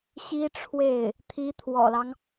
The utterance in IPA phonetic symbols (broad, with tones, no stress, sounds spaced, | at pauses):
ɕ i˥ ʈ͡ʂʰ w e˥˩ ɪ̯ | t̪ʰ i˧˥ t̪ʰ w ɔ̰˨˩ l ɑ˦ ŋ